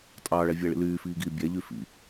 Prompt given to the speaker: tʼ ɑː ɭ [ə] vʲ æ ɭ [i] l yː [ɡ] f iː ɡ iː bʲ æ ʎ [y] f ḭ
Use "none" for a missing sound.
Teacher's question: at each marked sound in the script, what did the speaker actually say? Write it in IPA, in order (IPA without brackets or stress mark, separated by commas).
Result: æ, ḭ, none, y